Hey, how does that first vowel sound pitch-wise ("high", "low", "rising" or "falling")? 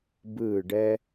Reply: falling